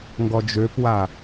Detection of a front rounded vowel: present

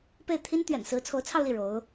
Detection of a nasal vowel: absent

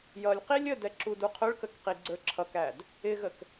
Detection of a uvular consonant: present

